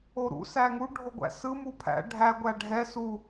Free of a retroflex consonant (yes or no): no